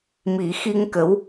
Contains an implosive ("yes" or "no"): no